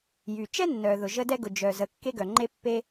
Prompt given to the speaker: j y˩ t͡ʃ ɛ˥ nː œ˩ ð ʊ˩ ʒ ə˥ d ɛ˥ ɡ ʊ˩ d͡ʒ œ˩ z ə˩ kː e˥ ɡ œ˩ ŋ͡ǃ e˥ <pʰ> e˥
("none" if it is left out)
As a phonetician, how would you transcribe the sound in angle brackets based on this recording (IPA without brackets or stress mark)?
pː